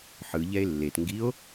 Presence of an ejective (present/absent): absent